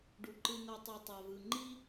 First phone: ɖ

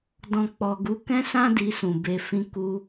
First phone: d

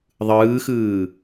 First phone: ðˤ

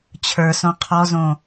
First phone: t͡ɕʰ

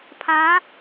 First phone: pʰ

